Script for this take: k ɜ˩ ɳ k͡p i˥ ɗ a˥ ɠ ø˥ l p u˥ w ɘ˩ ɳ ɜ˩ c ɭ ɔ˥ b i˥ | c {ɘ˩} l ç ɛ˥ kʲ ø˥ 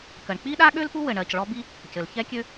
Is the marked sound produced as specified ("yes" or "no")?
yes